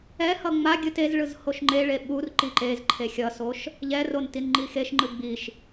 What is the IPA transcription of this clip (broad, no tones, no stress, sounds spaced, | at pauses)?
ɛ h ʌ ŋ͡m a ɡʲ ɯ t e z ɭ ɯ z h o ʃ ŋ͡ǃ e ɭ e ɓ u r ǃ i ǃ e z ǃʰ e xʲ ʌ s o ʃ | ʎ ɛ r o n t i n ŋ͡ǃ i x e ʃ ŋ͡ǃ ɯ ɡ͡b i ʃ